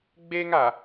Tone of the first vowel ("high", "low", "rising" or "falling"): high